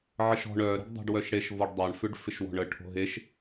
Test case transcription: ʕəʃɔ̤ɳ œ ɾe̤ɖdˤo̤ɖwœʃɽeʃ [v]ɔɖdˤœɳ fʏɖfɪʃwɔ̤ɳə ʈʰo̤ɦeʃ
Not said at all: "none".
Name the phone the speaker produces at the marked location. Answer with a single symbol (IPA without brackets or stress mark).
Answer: v